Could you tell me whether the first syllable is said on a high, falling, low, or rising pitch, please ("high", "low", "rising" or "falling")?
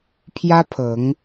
high